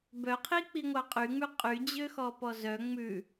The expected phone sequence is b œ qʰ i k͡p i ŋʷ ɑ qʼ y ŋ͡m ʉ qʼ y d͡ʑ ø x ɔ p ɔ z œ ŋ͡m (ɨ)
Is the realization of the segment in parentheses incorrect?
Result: yes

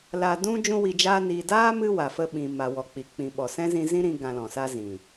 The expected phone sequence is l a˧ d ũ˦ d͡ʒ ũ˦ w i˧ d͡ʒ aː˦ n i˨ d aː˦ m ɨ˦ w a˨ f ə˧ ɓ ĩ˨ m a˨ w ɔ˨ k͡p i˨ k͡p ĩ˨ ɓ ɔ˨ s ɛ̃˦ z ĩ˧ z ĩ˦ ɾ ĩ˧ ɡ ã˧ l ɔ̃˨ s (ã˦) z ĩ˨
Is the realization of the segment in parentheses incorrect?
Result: yes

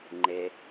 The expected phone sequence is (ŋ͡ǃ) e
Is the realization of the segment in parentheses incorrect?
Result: no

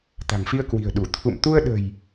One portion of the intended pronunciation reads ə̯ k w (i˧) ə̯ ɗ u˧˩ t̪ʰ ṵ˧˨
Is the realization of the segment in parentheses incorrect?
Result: yes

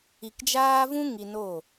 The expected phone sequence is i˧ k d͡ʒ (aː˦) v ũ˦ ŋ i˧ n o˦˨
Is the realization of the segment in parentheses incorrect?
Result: no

